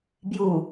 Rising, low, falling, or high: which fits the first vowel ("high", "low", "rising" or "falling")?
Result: low